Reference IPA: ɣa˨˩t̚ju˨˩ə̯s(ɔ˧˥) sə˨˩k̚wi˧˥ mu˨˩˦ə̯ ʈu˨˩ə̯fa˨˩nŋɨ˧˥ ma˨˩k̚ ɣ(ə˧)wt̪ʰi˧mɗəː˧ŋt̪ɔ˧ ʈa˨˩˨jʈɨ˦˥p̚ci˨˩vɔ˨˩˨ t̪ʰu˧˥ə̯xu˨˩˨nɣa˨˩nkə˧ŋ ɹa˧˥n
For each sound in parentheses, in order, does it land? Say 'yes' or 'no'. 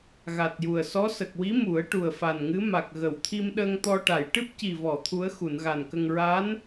yes, no

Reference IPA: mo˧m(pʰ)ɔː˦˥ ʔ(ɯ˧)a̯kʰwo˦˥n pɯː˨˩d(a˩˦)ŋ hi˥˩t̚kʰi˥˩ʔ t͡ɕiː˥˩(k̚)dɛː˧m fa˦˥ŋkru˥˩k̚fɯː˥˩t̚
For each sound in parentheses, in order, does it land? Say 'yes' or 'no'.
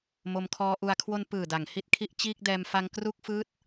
no, no, yes, yes

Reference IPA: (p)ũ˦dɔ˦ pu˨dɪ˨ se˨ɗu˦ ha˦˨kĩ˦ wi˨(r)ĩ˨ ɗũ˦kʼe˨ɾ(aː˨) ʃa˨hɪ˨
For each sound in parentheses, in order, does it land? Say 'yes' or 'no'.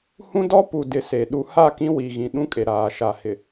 no, no, yes

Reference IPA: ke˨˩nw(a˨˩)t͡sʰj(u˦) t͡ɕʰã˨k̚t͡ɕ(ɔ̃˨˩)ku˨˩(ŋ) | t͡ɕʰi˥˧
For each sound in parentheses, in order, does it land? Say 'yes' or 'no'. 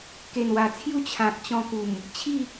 yes, yes, no, no

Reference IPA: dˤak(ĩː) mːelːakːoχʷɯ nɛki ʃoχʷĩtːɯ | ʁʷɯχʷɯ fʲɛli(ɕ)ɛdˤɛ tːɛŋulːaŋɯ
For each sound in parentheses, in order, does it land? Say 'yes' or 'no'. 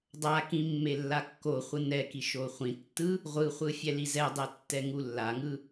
no, no

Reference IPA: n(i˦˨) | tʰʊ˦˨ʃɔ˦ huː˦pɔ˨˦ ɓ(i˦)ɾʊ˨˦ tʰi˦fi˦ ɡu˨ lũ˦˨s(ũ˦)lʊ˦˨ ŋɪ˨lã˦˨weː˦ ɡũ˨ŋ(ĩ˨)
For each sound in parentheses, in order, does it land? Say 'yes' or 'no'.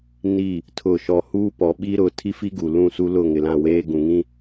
yes, yes, no, no

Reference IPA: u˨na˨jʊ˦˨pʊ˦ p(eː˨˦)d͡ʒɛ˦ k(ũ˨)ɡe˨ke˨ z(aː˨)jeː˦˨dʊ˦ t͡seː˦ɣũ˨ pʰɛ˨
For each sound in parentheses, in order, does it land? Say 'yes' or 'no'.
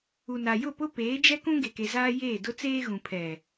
yes, no, no

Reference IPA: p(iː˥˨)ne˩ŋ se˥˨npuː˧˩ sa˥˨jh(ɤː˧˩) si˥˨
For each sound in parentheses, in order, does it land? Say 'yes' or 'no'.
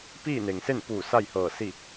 yes, yes

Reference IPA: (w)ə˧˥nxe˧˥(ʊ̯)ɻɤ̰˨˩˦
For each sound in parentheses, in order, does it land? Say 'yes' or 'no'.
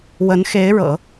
yes, no

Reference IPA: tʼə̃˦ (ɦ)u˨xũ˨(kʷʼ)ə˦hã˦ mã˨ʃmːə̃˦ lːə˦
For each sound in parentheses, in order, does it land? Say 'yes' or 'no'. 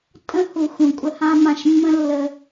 no, yes

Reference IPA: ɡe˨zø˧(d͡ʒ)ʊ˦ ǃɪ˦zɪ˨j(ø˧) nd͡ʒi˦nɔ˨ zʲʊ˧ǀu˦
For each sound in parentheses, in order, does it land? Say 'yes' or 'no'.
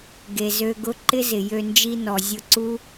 no, yes

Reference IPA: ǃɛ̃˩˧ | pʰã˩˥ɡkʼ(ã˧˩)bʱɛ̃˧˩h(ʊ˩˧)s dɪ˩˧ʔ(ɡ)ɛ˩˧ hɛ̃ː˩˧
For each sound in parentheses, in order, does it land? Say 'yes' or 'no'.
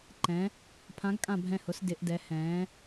yes, yes, no

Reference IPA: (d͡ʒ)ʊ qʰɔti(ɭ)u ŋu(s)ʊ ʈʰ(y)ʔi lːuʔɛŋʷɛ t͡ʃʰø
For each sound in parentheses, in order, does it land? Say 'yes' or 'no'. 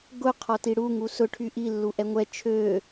no, no, yes, yes

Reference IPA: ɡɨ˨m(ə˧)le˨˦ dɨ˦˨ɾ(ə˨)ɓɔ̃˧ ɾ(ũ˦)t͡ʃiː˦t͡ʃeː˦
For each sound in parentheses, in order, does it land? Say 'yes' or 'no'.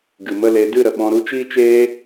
no, yes, no

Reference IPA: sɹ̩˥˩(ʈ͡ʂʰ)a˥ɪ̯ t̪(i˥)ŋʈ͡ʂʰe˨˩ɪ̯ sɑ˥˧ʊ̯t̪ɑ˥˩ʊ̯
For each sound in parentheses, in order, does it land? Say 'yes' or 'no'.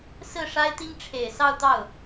no, yes

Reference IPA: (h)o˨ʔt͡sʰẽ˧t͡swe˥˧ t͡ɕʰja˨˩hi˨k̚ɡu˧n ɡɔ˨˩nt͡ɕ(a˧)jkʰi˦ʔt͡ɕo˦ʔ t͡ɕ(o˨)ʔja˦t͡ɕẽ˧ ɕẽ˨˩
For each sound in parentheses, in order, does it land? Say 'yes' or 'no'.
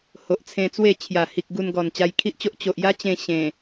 yes, yes, yes

